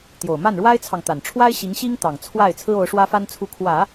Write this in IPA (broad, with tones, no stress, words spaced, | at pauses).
t̪jo˨˩ʊ̯ma˥˩nɻwa˥ɪ̯t͡sʰɑ˨ŋ t̪a˨˩nʈ͡ʂʰwa˥ɪ̯ ɕi˧˥ŋɕi˥ŋt̪ɑ˨˩ŋ t͡sʰwa˥˩ɪ̯ t͡sʰɹ̩˥o˧˥ʊ̯ʂwä˥fa˥n t͡sʰu˧˥kʰwä˨˩˦